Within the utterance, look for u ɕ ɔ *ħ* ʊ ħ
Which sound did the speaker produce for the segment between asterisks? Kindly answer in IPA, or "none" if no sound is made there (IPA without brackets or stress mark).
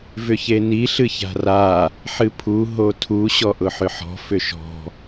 ʔ